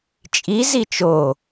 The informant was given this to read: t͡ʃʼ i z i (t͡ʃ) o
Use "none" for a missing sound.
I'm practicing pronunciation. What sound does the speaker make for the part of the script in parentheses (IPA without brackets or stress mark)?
t͡ʃ